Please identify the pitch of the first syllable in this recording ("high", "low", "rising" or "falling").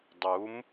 rising